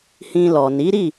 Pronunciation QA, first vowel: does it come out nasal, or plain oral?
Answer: nasal